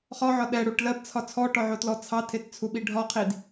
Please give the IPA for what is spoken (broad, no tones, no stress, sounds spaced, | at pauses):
χ ɒ ʕ ɒ ɗ ɛ ɽ u ʈ l ɜ b t͡sʰ ɒ t͡sʰ ɔ ʈ ɔ ʕ o t l ɔ t͡sʰ ɑ tʰ e t t͡sʰ u ɓ i ɖʱ ɒ qʰ i d